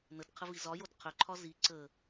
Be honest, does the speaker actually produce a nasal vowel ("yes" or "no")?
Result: no